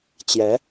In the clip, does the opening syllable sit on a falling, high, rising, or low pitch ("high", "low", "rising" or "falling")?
rising